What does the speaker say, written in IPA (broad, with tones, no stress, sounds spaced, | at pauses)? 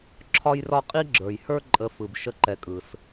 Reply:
ǁʰ ɒ˥ j r ɒ˥ qʼ i˥ ɡ͡ǁ ə˞˨ j h ə˞˦ ǃʼ ə˨ f ɯ˩ b ʃ ə˥ ǃ ɛ˨ kʼ ɯ˩ s